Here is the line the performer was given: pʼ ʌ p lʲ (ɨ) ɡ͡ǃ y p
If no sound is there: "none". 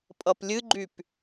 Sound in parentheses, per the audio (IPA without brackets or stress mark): ɨ